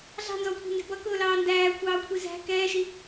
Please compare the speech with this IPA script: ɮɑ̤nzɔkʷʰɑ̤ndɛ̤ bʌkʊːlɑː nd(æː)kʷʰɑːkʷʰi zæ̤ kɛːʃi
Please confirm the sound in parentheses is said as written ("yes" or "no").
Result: yes